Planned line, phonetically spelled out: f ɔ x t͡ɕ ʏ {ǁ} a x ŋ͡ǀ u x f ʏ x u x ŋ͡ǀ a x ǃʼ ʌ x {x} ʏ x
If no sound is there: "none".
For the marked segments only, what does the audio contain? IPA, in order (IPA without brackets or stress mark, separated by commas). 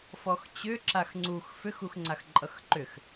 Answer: ǁ, ǃ